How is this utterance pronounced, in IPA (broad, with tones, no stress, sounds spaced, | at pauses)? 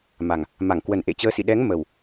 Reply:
m a˨˩ ŋ | m a˧˩ ŋ k w ə˨˩ n ʔ ḛ˧˨ t͡ɕ əː˨˦ s ḭ˧˨ ɗ ɛ˨˦ ŋ m ə˨˩ w